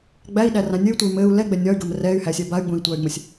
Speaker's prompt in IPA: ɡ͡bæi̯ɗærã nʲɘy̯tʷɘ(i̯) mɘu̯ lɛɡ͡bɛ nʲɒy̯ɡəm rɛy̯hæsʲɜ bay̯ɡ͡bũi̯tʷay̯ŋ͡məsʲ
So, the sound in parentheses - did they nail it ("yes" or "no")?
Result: no